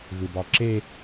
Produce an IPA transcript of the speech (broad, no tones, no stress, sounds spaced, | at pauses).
ɣ ɯ b ɑ ǁ e